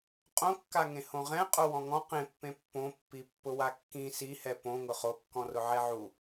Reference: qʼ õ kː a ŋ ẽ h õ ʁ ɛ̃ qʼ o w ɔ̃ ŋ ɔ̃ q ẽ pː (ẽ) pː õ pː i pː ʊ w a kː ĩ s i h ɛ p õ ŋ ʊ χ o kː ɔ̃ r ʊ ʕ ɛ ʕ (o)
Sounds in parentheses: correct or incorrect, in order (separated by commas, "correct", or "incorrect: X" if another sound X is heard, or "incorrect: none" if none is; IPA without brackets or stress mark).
correct, incorrect: u